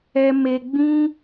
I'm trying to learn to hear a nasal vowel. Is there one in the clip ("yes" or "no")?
yes